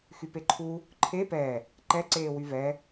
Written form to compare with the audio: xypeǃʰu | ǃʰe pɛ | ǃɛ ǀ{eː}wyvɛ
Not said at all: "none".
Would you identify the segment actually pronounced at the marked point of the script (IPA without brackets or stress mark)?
eː